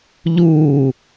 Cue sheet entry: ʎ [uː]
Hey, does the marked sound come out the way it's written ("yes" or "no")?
yes